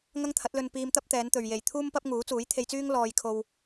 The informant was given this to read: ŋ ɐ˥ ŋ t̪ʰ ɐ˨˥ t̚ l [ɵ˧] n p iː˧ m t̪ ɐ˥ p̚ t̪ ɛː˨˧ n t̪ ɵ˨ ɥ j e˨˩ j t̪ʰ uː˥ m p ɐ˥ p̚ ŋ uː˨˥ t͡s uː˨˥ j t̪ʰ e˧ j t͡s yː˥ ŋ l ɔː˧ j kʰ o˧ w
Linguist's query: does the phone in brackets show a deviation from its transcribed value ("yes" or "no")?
no